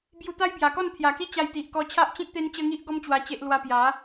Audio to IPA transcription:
b j u˧ t̪ a˦ j b j a˨˩ k ɔ˥˧ n t̪ʰ j a˨˩ k i˦ t͡ɕ a˧ j t̪ i˨ ʔ k ɔ˧ t͡ɕʰ a˦ ʔ t͡ɕ ĩ˦ k̚ t̪ e˦ n t͡ɕ ə˦ ŋ i˦ ʔ ɡ ɔ˦ m t͡ɕ w a˧ t͡ɕ e˦ ʔ l w a˦ p j a˨˦

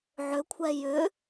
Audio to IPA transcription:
ʕ ʏ kʷʰ ɛ j ʏ

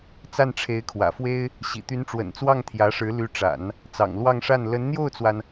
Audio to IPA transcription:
t͡s a˥˩ n ʈ͡ʂʰ e˧˥ ɪ̯ kʰ w ä̰˨˩ f w e˥ ɪ̯ | ɕ ḭ˨˩ t̪ y˧˥ n ʈ͡ʂ w ə̰˨˩ n t͡s w ɑ˥˩ ŋ t̪ʰ j ä˧˥ ʂ ɻ̩˧˥ l y˧˥ ʈ͡ʂ a̰˨˩˦ n | t͡s ɑ̰˨˩ ŋ l w ɑ˥˧ ŋ ʂ a˥˩ n l ə˧˥ n n̪ j o˥˩ ʊ̯ t͡s w a˩ n

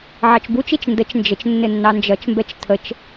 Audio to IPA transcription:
ʕ ɑ t͡ʃ b u t͡ʃ i t͡ʃ n d ə t͡ʃ n d͡ʒ ə t͡ʃ nː ɪ nː ɑ n d͡ʒ ʌ t͡ʃ m b ɛ t͡ʃ tʰ ə t͡ʃ

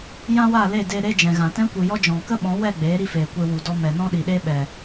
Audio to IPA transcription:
j ã˦ w a˦˨ l e˦˨ d e˦ ɾ e˦ d͡ʒ ɛ̃˨ ɣ ã˨ t ɛ̃˦ kʷ i˨ j ɔ˦ d͡ʒ ɔ̃˨ k ə˦ ɓ ɔ̃˨˦ w ɛ˦˨ ɡ͡b eː˨˦ ɾ i˧ f eː˨ kʷ e˧ w u˨ d ɔ˧ m ɛ˨ n ɔ̃˦ ɗ i˨ ɗ e˦ ɓ ɛ˨

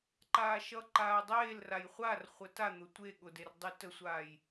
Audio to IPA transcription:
ǃ aː ʃ ʌ ǃ aː dˤ eː l r a j χʷ a r χʷ ə t a n̪ ʊ tʷ e ɠ ʊ d e r dˤ y t ə sʷ aː j

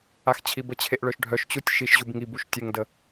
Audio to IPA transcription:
a x t͡ɕʰ i b ə t͡ɕʰ e ʔ ɭ œ ʃ ɖʱ œ ʃ t͡ɕ u tʲ ʃ i ʃ ʑ u b ŋ i b u ʃ tʲ ə ŋ d ə

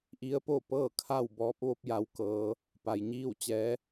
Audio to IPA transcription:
ʔ i˧˥ ə̯ p o˥˨ p ɤː˥˨ kʰ a˥˨ w b ɔː˧˥ p̚ ʋ o˧˥ p̚ j a˧˥ w k ɤː˧˥ | p a˩ j ɲ iː˥˨ w t͡ɕ ɛː˧˥

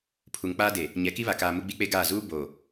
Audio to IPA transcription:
pʰ u˨ ŋ k͡p aː˦ d e˨ | ɲ ɛ˨˦ k i˦ β a˨ k aː˨ m u˦ ɡ͡b i˦ k͡p e˦ ɡ aː˦˨ z uː˦ b o˨

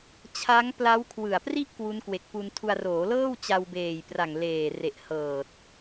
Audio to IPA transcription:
t͡ɕʰ a˦˥ ŋ p l a˦˥ w kʰ w ɯ˨˩ a̯ p r i˥˩ ʔ k w u˦˥ n k w e˨˩ k̚ p u˧ n tʰ u˧ a̯ r oː˩˦ l ɤː˥˩ w t͡ɕ a˧ w b eː˨˩ j p r a˨˩ ŋ l eː˨˩ r e˨˩ ʔ h ɤː˨˩ t̚

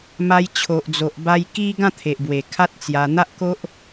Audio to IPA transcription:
m a˧ j t͡ɕʰ o˨ ʔ d͡z o˨ ʔ b a˧ j k i˦ ɡ ã˥˧ t̪ʰ e˨ ʔ b w e˨˩ kʰ a˦ t̚ t͡s j a˧ n̪ a˦ ʔ k o˦ ʔ

